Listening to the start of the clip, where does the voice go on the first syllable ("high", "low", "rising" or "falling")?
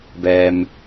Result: low